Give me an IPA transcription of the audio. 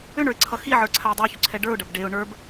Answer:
ʏ ɳ ə˞ ɪ̯ ǀʰ ʌ x i ʕ ə˞ ǀʰ a ɪ̯ dˤ ə˞ ç ʏ ǀʰ ɛ ɖ ə˞ ʊ̯ ɖ ɐ b ɖ e ʊ̯ ɳ ə˞ b

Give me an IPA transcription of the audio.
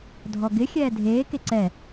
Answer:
dʱ ɔ ɡ ɪ xʲ ɛː dʱ eː k e ǀ ɛ

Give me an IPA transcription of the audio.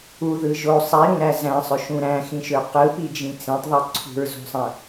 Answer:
u ð ɯ ʒ o sˤ i ɾ ũ ɾ æ z æ̃ sˤ ø ʃ ũ ɾ æ̃ x ĩ ʃ ø q ɯ p i d͡ʒ ĩ t͡s ẽ tˤ ðˤ i ǀʰ ṳ ɹ z o̤ sˤ æ̃

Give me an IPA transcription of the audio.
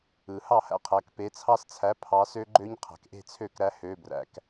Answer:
ɯ˩ h ɑ˥˩ h æ̰˦ qʰ æ˩˧˩ k p e˩˧ t͡sʰ ɑ˦ s t͡sʰ æ˩˥ pʰ ɑ˩˥ s ø˦ ɡ͡ǃ ø˦ ɲ qʰ æ̤˩ k ʔ e̤˥˩ t͡sʰ ø˥˩ k ɾ æ˦ h ø˩˧˩ b r æ̰˩ k

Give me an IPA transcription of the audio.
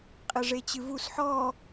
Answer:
qʼ ɘ ʐ e t͡ɕ ɨ v u s ħ ɔ

